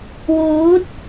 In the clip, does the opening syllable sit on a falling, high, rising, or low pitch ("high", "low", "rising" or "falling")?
rising